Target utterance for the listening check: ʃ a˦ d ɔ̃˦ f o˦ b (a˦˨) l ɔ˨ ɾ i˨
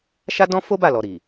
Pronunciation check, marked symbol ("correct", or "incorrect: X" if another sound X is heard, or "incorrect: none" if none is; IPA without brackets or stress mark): correct